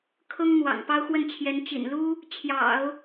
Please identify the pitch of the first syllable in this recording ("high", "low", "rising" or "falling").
high